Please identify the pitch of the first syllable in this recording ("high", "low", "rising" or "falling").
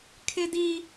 high